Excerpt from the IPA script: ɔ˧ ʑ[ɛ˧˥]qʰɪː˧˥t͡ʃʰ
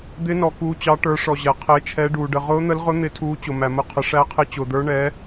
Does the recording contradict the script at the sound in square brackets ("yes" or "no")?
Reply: yes